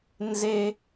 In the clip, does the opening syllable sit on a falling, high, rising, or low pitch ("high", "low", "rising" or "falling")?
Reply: high